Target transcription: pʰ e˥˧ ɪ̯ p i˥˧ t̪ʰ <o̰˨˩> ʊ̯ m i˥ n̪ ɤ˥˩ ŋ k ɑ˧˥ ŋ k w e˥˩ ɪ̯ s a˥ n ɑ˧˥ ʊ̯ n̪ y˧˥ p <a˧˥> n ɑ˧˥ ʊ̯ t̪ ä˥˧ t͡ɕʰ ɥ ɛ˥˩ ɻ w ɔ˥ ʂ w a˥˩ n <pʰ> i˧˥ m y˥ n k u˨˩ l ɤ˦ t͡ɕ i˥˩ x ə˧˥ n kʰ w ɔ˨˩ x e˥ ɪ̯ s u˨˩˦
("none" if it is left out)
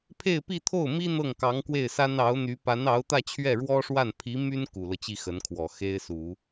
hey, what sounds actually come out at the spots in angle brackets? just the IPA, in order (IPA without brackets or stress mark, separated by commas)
o˥˩, a˧˥, pʰ